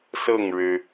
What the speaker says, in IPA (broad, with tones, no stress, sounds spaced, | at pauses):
s ɤ˥˩ ŋ ɻ ɻ̩˩